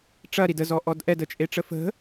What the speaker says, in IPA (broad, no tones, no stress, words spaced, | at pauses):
ʈ͡ʂɐɾid əzɔʔɔd ʔɛdət͡ʃʼeʈ͡ʂə fə̤